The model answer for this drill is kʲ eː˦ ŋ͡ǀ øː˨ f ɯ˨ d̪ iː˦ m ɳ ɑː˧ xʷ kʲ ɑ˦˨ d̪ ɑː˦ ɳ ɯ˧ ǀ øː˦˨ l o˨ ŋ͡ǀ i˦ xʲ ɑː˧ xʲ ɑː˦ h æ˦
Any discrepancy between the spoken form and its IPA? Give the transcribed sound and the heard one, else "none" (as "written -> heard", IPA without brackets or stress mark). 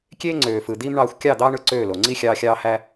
none